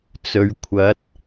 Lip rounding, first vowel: rounded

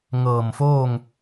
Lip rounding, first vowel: unrounded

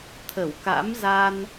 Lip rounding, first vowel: unrounded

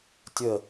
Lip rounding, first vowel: unrounded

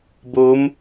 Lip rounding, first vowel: rounded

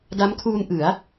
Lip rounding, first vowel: unrounded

